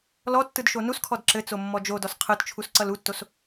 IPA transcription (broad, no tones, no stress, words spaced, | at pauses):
lɔtːɯd ʃonuskʰɔd ǁɘt͡so mːɔd͡ʒodɔs qʰɯtt͡ʃʰus ǀʌlutːos